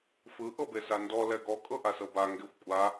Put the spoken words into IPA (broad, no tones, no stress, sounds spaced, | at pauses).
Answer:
f ɯ ʔ ɤ b e s a n d ɔ l ɛ ɡ ɔ kʼ ɤ ʔ a s ɤ b a ŋ ɡ e xʷ kʷʼ a